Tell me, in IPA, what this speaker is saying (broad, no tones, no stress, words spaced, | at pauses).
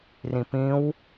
rĩpĩw